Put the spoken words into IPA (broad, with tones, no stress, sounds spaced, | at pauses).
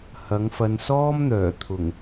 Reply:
h ɐ˨˥ ŋ f ɐ˧ n s ɔː˥ m n̪ œː˨˩ t̪ʰ ʊ˨˩ ŋ